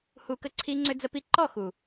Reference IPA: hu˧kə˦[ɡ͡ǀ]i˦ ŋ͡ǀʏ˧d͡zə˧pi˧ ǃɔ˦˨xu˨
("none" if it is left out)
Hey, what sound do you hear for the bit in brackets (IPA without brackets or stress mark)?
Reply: ǀʰ